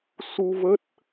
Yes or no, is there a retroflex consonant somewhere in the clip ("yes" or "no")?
no